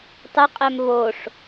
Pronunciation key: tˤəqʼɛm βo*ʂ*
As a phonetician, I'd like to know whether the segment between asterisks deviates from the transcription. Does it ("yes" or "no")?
no